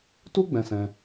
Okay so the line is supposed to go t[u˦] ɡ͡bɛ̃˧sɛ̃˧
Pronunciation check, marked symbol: correct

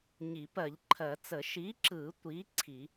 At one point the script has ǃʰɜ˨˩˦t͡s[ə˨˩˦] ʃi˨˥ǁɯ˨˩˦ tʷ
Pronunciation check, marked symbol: correct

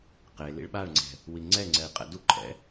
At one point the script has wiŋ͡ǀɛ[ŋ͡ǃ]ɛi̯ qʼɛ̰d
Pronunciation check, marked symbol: incorrect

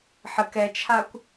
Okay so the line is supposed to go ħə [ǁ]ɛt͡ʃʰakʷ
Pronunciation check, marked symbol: incorrect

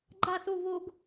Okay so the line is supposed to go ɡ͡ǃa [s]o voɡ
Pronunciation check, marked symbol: correct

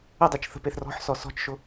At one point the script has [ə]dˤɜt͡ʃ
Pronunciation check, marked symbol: correct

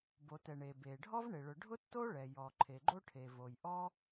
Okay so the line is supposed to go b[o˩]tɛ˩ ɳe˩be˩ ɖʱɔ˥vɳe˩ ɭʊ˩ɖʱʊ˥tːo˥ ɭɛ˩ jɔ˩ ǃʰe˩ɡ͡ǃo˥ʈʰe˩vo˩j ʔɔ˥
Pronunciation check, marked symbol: correct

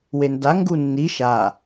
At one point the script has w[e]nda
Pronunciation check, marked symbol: correct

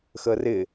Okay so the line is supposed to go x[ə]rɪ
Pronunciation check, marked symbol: correct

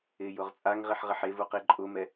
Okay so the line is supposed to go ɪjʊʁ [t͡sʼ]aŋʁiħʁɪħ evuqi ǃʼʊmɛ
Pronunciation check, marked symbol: correct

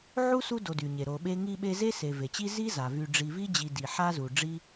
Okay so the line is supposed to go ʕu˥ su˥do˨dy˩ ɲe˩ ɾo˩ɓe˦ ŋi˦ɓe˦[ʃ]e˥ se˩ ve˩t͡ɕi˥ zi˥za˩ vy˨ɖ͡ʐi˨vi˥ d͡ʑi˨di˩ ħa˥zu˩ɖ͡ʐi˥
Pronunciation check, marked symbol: incorrect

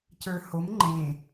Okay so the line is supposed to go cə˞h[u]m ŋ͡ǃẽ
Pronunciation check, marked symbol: incorrect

